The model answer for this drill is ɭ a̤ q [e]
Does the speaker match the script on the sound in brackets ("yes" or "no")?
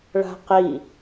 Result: no